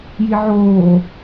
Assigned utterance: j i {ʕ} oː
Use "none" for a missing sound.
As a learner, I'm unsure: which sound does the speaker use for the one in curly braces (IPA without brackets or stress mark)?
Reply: ʕ